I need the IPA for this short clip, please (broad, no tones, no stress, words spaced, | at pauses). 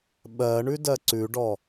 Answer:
ɓɜ ɳʉdɜǀʉɖɔ